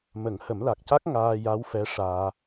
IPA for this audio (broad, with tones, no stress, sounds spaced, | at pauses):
m ə˨˩˦ ŋ h ə˨˩˦ m l a˨˩ k̚ c a˦˥ k̚ ŋ aː˧ j a˧˥ w f ɛ˧˥ ʂ aː˧